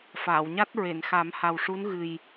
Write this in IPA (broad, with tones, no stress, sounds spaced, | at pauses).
f aː˨˩˨ w ɲ a˦˥ t̚ ɹ e˨˩˨ n x a˨˩˦ m h a˨˩ w ʂ u˧˥ n ɣ ɨ˨˩ j